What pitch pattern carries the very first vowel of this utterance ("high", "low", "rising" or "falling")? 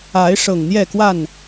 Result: rising